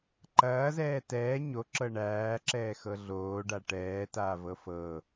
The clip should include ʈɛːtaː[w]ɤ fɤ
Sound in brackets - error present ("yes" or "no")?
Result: yes